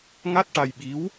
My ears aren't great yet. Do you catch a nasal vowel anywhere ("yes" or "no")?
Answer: no